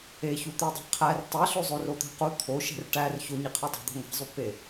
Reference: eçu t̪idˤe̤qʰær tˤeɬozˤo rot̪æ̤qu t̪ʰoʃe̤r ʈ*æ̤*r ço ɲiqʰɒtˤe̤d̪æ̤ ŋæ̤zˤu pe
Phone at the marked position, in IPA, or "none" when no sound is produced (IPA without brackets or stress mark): æ